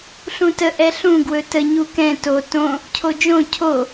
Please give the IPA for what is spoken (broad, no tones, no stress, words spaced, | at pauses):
ɬũtə ʔɛɬũ ɡwɵtə ɲukɛ̃ to tõ | cʰod͡ʒõ cʰo